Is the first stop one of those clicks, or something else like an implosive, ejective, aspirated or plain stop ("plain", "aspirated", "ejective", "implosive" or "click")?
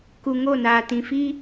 plain